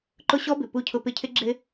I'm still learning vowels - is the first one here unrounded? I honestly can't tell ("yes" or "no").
no